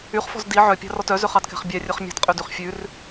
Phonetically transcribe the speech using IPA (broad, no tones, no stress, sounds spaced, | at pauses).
y χ f ɔ̤ z d i ʕ œ pʲ ɑ̤ r ɔ t œ z ø χ ɑ d k ɛ̤ χ bʲ æ rʲ œ χ mʲ ɑ̤ t qʼ ø d y χ fʲ ʉ r